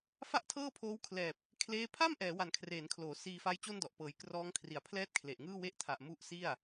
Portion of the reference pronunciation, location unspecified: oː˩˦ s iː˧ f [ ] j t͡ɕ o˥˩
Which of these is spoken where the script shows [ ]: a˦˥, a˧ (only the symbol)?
a˦˥